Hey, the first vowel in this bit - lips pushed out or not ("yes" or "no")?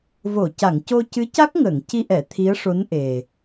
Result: yes